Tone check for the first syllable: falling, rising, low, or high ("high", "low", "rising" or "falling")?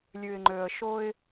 low